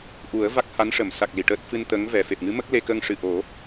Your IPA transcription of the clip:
ʔ u˨˩˦ ə̯ v a˦˥ k̚ h a˧˥ n ʂ ə˨˩˨ m s a˨˩ k̚ l i˨˩˨ ʈ əː˦˥ t̚ f ɨ˧ n t̪ ə˧˥ ŋ v ɛ˨˩ f e˨˩ p̚ ŋ ɨ˧˥ m ə˦˥ k̚ l e˧ k ə˧ ŋ ʂ ɨ˨˩ ʔ o˨˩˦

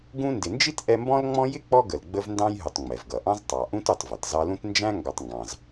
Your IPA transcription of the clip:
ɡ ũ˦ n d ɪ˨ n d͡ʒ i˥ t ʔ ɛ˦ m b ɔ̃˥ l ŋ͡m ɔ̃˥ j ɪ˥ k͡p ɔ˦ ɡ ə˩ l ɡ͡b ə˦ v n d ɑ̃˦ j ɦ ʊ˨ tˤ ŋ͡m ɛ˩ v ɡ ʌ˩ ʔ ɑ̃˥ z tˤ ɑ˩ ʔ ũ˦ t u˨ tˤ v ʌ˩ t z ɑ˦ l ũ˥ t n d͡ʒ æ̃˥ ŋ ɡ ɒ˨ tˤ ŋ ɡ ɑ̃˩ z

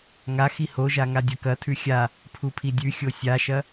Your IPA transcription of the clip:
ŋ a x i h o ʒ a ŋ a dʲ ɐ k ɐ tʰ ʉ xʲ a | pʰ u pʰ i dʲ ʉ xʲ o sʲ a ʃ ɐ

